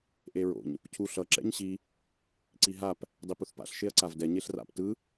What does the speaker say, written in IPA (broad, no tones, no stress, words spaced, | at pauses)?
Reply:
ʔeɹo̰ɲ | cʰu ɬʌ ǁɛ̰ɲɕi | ǀiɦap | dˤipuθpa̰ɬ ʃeɐ̯ǀavdɛ ɲeɬra̰p tɯ